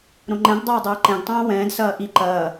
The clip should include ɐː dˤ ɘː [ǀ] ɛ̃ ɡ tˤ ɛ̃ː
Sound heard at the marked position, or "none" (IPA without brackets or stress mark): ǃ